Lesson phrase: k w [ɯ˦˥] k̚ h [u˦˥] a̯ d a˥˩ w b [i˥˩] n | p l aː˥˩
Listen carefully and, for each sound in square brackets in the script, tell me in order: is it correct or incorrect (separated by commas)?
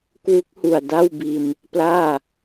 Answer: incorrect, incorrect, incorrect